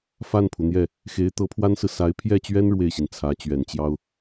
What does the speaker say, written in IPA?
f a˥˩ n pʰ u˩ n̪ j ɛ˥˩ | x e˧˥ ɪ̯ t̪ ɤ˧˥ pʰ w a˥ n s ɹ̩˨ s a˧˥ ɪ̯ pʰ j ɛ˥˩ t͡ɕ ɥ ɛ˥ n ɻ w e˥˩ ɪ̯ ɕ i˩ n t͡sʰ ä˧˥ t͡ɕ ɥ ɛ˨˩ n t͡ɕ j ɑ˥ ʊ̯

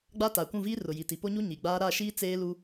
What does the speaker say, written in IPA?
ɡ͡b a˦ t aː˨ kʷ ũ˦˨ v iː˦ r ʊ˨ j i˨ t i˨ p o˦ ɲ u˦ ɲ i˨ ɡ͡b aː˦ ɾ a˦˨ ʃ iː˦ t͡s eː˦ l u˦

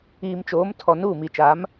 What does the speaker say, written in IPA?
iː˨ m t͡ʃ oː˨˦ m tʰ ɔ˨ n uː˦˨ m i˨ t͡ʃ aː˨˦ m

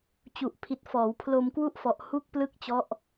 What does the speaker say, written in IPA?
t͡ɕ u˨˩ ʔ pʰ i˨˩ t̚ f ɔː˩˦ w pʰ l o˧ m k w u˥˩ ʔ f ɔ˨˩ ʔ h u˥˩ k̚ p l ɯ˥˩ k̚ t͡ɕ ɔ˦˥ ʔ

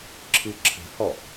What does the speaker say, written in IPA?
ǁʰ ɨ ǁʰ ə̤ h ɔ

